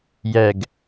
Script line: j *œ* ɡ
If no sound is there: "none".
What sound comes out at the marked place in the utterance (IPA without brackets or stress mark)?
ɛ